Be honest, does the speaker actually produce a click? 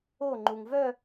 yes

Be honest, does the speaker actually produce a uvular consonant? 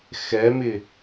no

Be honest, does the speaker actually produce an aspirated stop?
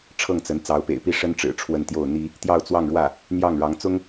yes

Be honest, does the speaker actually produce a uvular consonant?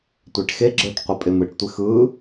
yes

